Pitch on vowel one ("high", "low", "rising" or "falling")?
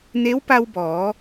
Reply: rising